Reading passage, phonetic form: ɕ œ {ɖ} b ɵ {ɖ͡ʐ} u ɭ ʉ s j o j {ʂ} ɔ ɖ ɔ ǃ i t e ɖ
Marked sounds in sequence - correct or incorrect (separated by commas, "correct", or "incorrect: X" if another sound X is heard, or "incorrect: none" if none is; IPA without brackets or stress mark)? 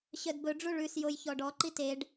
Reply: incorrect: d, correct, incorrect: ç